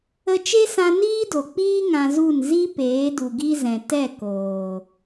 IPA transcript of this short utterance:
ə˧t͡ʃe˦sã˧ niː˦do˨k͡piː˦ ŋã˧zu˦˨n zi˦ peː˨˦du˨ɡi˦zɛ̃˨ tɛ˦˨ koː˨

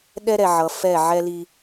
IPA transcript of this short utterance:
ɗɛ˦ɾɛ˨ʕʌ˨ fɛ˦˨ʕɛ˦li˦

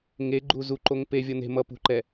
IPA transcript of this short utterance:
ŋeɡ͡ǃu zuǃoŋ pevʲʌ ne̤ mʌpṳǃɛ

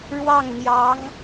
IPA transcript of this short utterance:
ɻwɑ˥˩ŋn̪jɑ˧˥ŋ

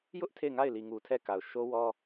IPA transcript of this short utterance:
jʊ˦ʔ tʰe˦˨ɪ̯ŋa˦˨ɪ̯li˨ŋu˨ tʰɛ˦˨ka˨ʊ̯ ʃo˦wɔ˦

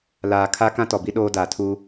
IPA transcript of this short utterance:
laː˨kʰa˦ kã˦tɔ˨bi˦ ɗoː˦daː˨tʰu˦

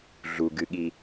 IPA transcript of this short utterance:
ɮuɡɨɠi

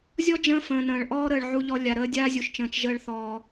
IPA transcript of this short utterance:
zʲɔ˦ d͡ʒə̃ː˦fə̃ː˨nə̃ː˨ɭ ʔɔː˦ɾəː˨ɭ ʕu˨ʎɔ˨ lʲa˨ɾəː˦ dʲaː˦zʲu˨ʃt͡ʃə̃ː˨t͡ʃ ʒəː˧ɭθɔː˨

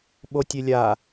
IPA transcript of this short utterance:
ɓotʲelʲa

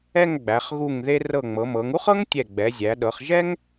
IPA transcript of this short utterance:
ɛ˥˧ŋ ɡ͡bæ˩˧χɣu˧˩ŋðe˧ rɤ˧˩ŋ͡mɤ˩˧mɤ˩˧ŋ u˥χɤ˥ŋtʲɛ˧˩ ɡ͡bɛ˩˧zʲæ˩˧ɗɤ˩˧χ ʒɛ˥ŋ

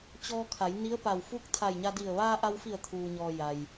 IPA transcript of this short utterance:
t͡ɕɔː˧kʰa˩˧j ni˧˥ə̯pa˧˩wfu˥˨k̚ t̪ʰa˧˩jɲa˧di˧˩ə̯ ʋaː˧ʔa˧wfi˧˩ə̯ t̪ʰuː˩ɲɔː˩ ja˩j

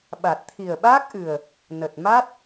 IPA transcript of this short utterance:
ɓa˨˩t̚t̪ʰi˨˩ə̯ɓaː˦˥k̚ʔɨ˨˩ə̯ | nə˨˩t̚ma˦˥t̚

